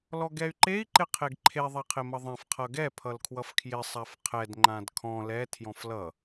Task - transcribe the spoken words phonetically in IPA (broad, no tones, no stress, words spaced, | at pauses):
lɔɡɛy̯ǃei̯ ǃɪqʰeɡǃʰe ðˤaqʰɪmʌðˤɛ̃f qʰʌɡɛ pʰʌlkʰwʌfkʰjɪ sˤafqʰɛd ŋ͡ǃãdkʰɔ̃ lɛ tʰjɔ̃flʌ